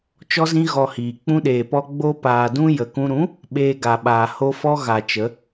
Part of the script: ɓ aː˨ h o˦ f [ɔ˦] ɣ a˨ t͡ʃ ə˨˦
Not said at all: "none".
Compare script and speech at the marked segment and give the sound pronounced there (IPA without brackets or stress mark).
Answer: ɔ˦